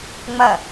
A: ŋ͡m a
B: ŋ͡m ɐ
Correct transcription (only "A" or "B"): B